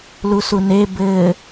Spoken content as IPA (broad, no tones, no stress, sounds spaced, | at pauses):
l u s u n e b ɘ